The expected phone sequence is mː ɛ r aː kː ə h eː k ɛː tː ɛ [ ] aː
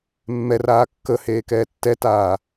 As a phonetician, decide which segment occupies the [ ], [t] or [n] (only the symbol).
t